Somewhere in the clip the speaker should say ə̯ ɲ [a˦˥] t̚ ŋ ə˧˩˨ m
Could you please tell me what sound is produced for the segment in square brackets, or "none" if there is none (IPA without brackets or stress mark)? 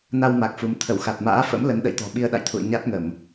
a˦˥